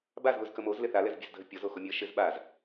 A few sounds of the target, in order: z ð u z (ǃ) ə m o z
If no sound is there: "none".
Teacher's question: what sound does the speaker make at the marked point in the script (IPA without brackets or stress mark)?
k